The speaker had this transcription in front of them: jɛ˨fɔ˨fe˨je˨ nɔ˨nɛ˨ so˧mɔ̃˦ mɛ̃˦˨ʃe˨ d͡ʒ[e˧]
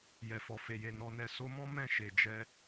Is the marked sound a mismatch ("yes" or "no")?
yes